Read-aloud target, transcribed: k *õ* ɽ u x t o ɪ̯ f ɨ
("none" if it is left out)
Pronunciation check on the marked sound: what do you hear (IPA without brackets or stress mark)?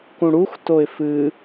ũ